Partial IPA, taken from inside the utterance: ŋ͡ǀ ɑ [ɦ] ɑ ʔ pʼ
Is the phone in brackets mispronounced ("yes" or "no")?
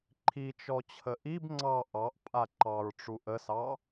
yes